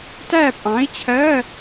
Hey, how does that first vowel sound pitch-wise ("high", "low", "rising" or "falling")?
falling